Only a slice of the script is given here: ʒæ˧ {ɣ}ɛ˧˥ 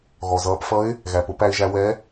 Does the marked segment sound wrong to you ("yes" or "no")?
yes